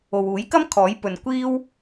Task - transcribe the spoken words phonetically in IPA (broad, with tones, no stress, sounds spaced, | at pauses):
o˨ w uː˨˥ j k ɐ˥ m kʰ ɔː˨˥ j p ɵ˨ n kʷ iː˥ w